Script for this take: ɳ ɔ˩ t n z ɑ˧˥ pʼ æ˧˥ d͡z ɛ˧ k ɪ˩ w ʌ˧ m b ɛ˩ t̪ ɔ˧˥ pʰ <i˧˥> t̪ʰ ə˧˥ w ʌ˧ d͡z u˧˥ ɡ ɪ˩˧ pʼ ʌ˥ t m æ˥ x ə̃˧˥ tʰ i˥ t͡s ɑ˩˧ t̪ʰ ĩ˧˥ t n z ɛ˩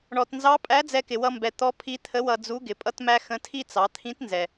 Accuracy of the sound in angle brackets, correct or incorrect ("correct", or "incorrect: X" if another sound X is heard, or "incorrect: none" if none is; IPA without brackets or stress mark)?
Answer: correct